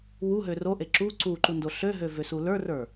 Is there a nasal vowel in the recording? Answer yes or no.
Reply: no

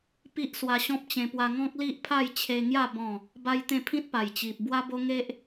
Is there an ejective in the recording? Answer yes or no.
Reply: no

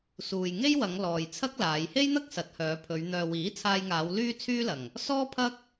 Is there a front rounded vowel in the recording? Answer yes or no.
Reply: yes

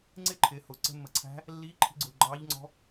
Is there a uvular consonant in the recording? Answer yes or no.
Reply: no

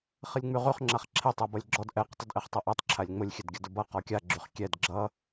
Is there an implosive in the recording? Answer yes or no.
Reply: no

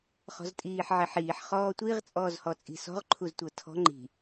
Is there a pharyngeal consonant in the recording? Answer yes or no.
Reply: yes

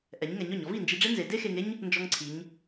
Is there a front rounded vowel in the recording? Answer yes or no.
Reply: yes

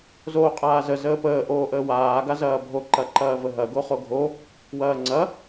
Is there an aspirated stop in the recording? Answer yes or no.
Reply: no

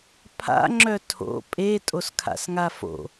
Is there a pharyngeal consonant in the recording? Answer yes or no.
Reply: no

